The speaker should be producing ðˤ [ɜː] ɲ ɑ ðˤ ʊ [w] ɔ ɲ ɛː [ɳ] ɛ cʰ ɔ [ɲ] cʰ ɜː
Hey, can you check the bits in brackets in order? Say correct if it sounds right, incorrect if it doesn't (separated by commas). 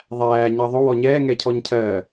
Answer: incorrect, correct, incorrect, correct